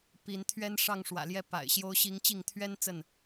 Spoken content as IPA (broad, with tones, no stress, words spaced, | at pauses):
pi˨˦n t̪ʰɥɛ˦nʂɑ˥˨ŋʂwä̰˨˩ljɛ˦ pa̰˨˩ɪ̯ɕjo˦ʊ̯ɕi˦ŋ t͡ɕi˥˨ŋt̪ʰɥɛ˦n t͡sə˥˨n